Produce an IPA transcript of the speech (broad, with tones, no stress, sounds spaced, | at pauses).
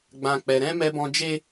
ɡ͡b ã˨ k͡p ɛ˨ ɾ ɛ̃˧ m ɛ˧ b ɔ̃˧ d͡ʒ e˦